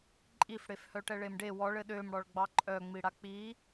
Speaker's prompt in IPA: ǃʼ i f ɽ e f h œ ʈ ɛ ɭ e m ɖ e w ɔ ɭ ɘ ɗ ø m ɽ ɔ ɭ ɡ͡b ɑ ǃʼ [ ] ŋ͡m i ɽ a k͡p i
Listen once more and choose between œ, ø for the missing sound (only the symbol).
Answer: œ